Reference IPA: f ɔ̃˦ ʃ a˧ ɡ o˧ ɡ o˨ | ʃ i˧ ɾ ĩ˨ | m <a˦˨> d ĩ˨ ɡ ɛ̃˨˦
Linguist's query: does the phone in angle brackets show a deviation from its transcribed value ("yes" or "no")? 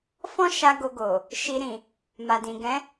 yes